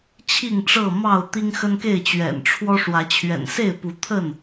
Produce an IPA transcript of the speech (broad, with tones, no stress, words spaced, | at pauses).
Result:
t͡ɕʰi˥˨ŋʈ͡ʂɤ˥˨ mɑ˥˨ʊ̯ t̪i˦ŋxə˦nke˥˨ɪ̯ t͡ɕɥɛ̰˨˩nʈ͡ʂʰwɔ˦ʂwä˨˦ t͡ɕʰɥɛ̰˨˩nse˥˨ɪ̯ pu˨˦t̪ʰə˥˨n